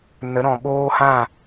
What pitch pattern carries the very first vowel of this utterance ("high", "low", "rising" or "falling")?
rising